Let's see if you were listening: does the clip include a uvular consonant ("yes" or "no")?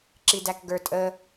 no